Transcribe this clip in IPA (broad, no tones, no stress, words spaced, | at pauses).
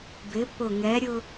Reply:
bɪ pʊ ŋɛɾʲʊ